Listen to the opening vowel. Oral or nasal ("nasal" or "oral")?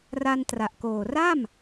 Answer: oral